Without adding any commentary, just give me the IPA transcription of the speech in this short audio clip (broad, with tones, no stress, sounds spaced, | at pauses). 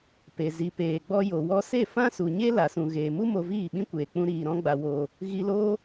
p e˨ z i˨ p eː˨ ɡ͡b ɔ˧ j o˨ w ɔ˧ s e˦˨ f ã˦ s u˨ ɲ e˦ l a˨ s ũ˨ ɣ eː˨ m u˦ m o˧ v iː˦˨ ɓ ĩ˦ kʷ eː˨ k͡p ũ˧ ɾ iː˨ ɾ ɔ̃˦ ɡ͡b a˧ w oː˧ | ɣ i˧ l oː˦